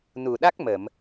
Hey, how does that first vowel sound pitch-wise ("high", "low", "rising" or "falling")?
low